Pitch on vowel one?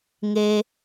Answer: high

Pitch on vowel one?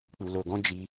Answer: low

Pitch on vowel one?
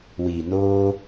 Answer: low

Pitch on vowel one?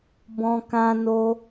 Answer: high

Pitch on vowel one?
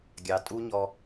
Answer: low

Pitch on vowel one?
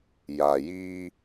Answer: low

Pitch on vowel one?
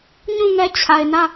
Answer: falling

